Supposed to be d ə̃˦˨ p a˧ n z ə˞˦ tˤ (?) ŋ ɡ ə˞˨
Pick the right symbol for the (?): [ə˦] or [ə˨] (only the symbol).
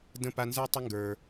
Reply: ə˦